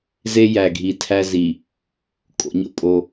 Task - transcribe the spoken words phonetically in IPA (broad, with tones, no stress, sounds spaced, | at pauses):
z e˦ j æ˨ ɡʱ i˨ tʰ æ˦ z i˨ | kʼ o̰˨˦ ɲ o̰˨ pʼ o˦